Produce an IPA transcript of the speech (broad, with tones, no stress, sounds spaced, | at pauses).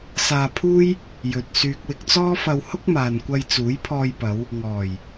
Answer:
s aː˧ pʰ uː˥ j | j ɵ˨ t̚ s yː˨ k̚ w ɪ˧ k̚ t͡s ɔː˥ f ɐ˧ w h ʊ˥ k̚ m aː˨ n kʷ ɐ˧ j t͡s uː˨˥ j pʰ ɔː˧ j p ɐ˨˧ w | ŋ ɔː˨˩ j